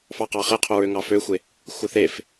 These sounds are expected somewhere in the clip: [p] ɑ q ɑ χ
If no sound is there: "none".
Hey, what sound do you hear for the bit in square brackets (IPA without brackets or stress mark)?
f